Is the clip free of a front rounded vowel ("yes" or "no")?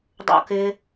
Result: yes